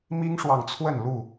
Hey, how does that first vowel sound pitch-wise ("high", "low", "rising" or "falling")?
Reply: high